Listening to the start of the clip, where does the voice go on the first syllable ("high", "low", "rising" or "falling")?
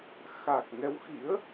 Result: low